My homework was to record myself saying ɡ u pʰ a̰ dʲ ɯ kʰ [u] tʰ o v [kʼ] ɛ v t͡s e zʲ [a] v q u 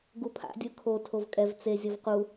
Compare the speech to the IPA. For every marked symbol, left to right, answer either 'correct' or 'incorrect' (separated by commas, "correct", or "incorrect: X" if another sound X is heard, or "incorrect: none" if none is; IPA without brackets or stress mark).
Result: incorrect: o, correct, incorrect: ʌ